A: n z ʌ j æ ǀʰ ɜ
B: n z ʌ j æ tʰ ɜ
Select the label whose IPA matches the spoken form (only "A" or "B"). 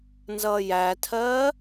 B